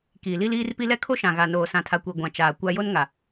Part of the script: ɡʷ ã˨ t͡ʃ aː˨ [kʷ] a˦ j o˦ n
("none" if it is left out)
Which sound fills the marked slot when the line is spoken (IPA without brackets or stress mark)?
kʷ